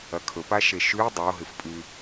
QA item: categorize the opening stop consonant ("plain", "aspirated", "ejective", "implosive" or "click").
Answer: aspirated